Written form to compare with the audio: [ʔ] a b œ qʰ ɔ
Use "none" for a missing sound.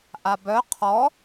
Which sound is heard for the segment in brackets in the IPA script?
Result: ʔ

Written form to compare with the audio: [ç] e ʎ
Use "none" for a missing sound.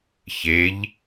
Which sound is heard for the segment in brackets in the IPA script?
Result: ç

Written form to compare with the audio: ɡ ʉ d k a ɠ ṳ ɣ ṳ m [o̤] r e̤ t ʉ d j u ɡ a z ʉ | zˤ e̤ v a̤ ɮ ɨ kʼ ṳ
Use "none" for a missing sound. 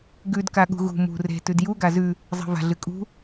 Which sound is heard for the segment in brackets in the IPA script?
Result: ṳ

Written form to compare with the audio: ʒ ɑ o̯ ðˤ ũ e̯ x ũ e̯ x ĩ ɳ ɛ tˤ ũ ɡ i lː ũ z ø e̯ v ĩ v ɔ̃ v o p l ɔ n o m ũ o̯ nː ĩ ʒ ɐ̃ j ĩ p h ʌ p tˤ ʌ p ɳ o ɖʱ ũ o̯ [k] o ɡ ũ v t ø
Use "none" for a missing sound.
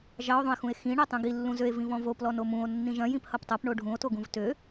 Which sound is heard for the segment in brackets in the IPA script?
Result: t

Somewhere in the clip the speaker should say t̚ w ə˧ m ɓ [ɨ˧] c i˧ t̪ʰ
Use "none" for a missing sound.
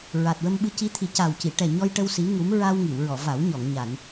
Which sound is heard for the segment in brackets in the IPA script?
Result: ɨ˧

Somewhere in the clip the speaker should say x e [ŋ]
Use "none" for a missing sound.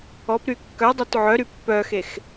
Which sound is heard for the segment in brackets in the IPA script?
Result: x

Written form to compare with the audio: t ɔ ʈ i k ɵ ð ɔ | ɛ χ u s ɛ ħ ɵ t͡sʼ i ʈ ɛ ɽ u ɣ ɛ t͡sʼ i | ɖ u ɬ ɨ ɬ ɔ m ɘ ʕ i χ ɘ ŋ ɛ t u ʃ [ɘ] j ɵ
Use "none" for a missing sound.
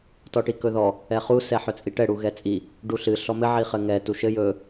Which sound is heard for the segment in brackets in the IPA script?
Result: ɘ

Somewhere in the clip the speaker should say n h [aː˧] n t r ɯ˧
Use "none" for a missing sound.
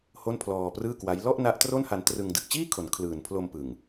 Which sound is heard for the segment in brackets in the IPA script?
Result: a˧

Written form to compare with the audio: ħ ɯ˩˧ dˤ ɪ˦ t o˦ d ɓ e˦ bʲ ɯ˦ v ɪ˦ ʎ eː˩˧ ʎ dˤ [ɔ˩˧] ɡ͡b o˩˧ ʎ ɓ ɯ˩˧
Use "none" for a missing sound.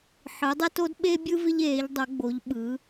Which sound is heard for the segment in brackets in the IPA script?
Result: o˩˧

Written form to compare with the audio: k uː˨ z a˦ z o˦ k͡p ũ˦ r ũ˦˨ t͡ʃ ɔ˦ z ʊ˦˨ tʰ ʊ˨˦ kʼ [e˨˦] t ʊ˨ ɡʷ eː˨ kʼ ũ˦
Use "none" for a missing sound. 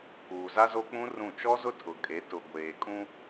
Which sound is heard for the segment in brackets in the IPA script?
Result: e˨˦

